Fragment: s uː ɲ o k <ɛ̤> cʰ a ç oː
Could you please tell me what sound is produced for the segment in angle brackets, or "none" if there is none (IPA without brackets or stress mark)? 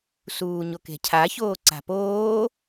e̤